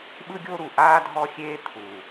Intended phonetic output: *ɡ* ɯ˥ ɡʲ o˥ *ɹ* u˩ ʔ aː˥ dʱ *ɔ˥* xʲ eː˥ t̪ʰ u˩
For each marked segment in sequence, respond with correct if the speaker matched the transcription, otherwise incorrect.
incorrect, incorrect, correct

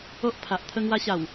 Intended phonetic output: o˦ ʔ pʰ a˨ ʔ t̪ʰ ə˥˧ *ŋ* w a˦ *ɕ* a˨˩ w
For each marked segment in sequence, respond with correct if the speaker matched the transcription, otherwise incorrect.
correct, correct

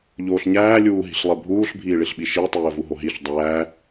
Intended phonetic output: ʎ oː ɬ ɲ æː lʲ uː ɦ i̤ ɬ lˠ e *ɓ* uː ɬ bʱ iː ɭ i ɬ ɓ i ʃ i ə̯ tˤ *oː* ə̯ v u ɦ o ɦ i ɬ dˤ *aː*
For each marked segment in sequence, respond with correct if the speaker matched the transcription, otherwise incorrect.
incorrect, incorrect, incorrect

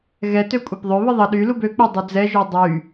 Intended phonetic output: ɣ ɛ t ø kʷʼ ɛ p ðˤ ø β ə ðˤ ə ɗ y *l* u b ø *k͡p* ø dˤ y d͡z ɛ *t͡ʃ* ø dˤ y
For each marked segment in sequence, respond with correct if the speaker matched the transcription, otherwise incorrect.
correct, correct, incorrect

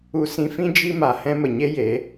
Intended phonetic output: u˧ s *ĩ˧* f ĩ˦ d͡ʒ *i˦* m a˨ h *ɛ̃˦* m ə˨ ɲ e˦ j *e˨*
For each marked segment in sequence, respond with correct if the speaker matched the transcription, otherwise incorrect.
correct, correct, correct, incorrect

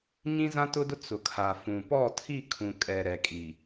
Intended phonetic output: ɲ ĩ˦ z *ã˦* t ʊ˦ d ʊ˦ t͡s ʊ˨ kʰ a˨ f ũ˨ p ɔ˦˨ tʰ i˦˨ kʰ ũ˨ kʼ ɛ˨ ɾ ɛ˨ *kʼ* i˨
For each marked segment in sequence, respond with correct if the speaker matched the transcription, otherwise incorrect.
correct, correct

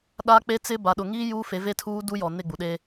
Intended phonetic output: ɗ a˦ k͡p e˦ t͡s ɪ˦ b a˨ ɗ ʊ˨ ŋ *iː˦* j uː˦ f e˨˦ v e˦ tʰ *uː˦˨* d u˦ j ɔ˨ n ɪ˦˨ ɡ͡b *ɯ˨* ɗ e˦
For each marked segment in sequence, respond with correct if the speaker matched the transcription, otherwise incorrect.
correct, incorrect, incorrect

